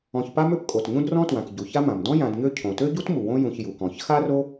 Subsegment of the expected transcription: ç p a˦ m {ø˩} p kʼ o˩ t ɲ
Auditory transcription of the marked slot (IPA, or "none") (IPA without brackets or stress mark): ø˦